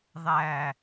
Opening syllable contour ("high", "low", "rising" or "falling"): falling